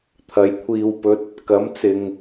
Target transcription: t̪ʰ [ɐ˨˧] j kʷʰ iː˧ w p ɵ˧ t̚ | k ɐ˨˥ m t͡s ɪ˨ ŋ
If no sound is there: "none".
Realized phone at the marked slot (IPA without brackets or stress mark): ɐ˨˧